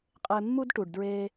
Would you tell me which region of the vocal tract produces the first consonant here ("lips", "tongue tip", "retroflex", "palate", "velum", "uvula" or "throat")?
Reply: uvula